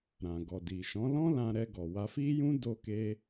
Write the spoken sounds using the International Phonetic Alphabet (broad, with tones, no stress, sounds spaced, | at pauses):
ɾ ã˨ ɡ ɔ˨ d i˨ ʃ ɔ̃˨˦ l ɔ̃˦ l ã˧ ɾ ɛ˧ ɡ ɔ˨ w a˧ f i˦ j ũ˦ d o˦ k e˦